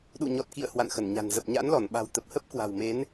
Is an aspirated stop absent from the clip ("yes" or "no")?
yes